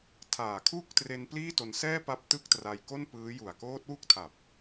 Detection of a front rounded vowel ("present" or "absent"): absent